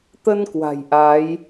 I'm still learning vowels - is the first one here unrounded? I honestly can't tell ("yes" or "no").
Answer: yes